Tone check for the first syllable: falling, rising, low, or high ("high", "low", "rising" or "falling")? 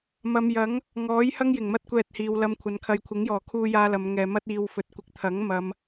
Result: low